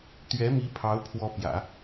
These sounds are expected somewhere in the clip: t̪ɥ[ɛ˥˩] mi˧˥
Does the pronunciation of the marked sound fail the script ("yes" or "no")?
yes